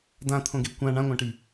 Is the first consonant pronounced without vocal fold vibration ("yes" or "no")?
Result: no